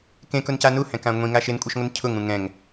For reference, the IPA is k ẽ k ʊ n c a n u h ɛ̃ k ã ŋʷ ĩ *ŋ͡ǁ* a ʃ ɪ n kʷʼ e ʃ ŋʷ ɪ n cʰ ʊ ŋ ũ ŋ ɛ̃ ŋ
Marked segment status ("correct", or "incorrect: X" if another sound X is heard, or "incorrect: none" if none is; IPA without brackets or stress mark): incorrect: ŋ